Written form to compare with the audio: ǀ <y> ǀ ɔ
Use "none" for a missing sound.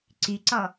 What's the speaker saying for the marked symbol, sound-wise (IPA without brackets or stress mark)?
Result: y